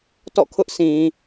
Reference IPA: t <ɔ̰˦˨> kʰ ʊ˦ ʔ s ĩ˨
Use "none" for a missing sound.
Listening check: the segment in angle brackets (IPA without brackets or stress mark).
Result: ɔ̰˦˨